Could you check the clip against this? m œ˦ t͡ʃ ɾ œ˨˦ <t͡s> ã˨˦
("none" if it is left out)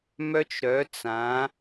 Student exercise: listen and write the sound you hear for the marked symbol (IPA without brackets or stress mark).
t͡s